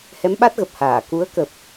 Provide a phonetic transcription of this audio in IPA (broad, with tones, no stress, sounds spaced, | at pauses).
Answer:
h ɛ˨˦ m ɓ a˦˥ t̚ ɣ ə˨˩ p̚ h aː˧˩ k u˨˦ ə̯ k ə˨˩ p̚